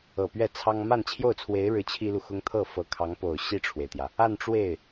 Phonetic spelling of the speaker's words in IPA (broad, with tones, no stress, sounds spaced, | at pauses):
ɤ˨˩ p ɥ ɛ˥˩ t͡sʰ ɑ˥ ŋ m a˥˧ n t͡ɕʰ j o˥˩ ʊ̯ t͡sʰ w e˧˥ ɪ̯ ɻ ɻ̩˥˩ t͡ɕʰ i˥ l u˨ x ʊ˥ ŋ t̪ʰ ɤ˥˩ f ɤ˧˥ kʰ ɑ˧˥ ŋ p o˨˩ ʊ̯ ɕ i˥˩ ʈ͡ʂʰ w e˩ ɪ̯ t̪ j ä˩ | a˥˧ n ʈ͡ʂ w e˥˩ ɪ̯